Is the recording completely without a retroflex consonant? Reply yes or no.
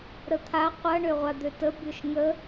no